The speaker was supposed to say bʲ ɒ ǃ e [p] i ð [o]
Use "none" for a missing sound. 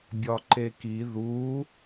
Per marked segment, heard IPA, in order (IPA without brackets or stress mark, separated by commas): k, u